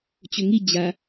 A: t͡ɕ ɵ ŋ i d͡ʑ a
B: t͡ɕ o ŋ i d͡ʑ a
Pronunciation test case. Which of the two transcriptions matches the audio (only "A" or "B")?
A